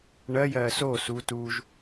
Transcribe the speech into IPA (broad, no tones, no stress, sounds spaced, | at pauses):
ɳ ɜ j ɜː s o s u t u ʒ